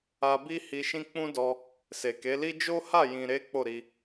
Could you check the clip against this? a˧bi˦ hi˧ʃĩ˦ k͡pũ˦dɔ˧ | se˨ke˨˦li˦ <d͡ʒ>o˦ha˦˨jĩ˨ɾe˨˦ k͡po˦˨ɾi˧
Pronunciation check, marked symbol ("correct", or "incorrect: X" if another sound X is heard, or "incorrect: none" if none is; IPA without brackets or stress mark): correct